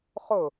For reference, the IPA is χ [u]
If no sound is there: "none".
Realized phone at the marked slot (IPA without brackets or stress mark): ʊ